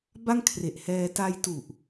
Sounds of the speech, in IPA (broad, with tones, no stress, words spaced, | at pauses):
ba˥˩ŋkʰre˨˩ʔhɛː˧ ta˧j tu˨˩ʔ